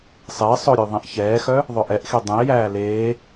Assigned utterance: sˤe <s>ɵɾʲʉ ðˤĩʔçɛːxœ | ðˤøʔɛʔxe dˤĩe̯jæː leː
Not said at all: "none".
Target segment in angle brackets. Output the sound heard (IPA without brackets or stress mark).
sˤ